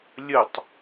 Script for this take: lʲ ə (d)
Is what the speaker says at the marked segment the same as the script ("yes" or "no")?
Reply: no